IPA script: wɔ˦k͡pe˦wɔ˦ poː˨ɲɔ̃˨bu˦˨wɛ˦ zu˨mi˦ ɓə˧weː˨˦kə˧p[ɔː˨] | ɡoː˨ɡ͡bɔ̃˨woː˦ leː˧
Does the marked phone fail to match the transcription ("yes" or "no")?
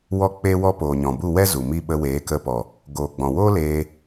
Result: yes